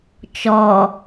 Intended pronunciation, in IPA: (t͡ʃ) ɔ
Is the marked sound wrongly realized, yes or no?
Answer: no